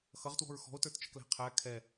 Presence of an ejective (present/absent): absent